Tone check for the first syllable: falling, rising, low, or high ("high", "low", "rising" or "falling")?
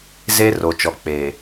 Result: high